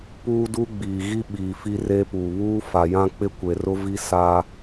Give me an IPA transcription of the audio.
p uː˦ d u˦ ɡ͡b iː˨ ɣ i˦ ɓ iː˨ f i˦ r eː˦ p uː˨ β uː˦ f a˨ j ã˦ k͡p ɪ˦ kʷ e˨ r ʊ˦ v i˦ s a˦

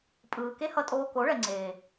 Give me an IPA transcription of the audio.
pʼ ɯː˨ k e˦ h ʌ˧ tʼ oː˧ k o˨˦ ɭ ɛ˨ ŋ͡ǀ eː˨

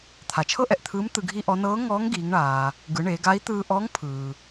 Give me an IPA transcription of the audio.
t̪ʰ a˩ t͡ʃʰ ɤ˥ ʔ ɛ˩ ʔ t̪ʰ ɯː˧˥ m t̪ ɯ˧ ɡʱ i˥ ʔ ɔ˧˥ n ɤː˧˥ ŋ ɔː˧˥ ŋ ɡ iː˩˧ ŋ ɳ aː˩ | ɡ ɯ˩˧ ɳ eː˩˧ ɡ a˧˥ i̯ t̪ ɯː˧ ʔ ɔ˧˥ ŋ pʰ ɯː˩

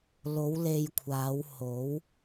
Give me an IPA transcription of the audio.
l o˨˧ w l e˨ j kʷʰ aː˨˧ w h o˨˧ w

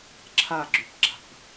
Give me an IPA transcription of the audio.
ǁʰ a ɡ͡ǁ y p ɡ͡ǁ a̤ p

